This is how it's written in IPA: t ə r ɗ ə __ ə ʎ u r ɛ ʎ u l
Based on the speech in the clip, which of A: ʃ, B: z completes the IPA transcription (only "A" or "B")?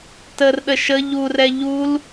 A